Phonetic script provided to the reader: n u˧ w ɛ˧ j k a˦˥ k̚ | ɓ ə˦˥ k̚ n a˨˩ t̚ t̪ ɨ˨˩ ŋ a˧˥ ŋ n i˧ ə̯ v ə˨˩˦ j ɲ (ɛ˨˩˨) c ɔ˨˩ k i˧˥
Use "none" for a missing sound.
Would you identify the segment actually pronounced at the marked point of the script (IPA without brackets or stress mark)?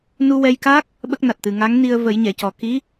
ɛ˨˩˨